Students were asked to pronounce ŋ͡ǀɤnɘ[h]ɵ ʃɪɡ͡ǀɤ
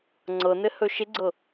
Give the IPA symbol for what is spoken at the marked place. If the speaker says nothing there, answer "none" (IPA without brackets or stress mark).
h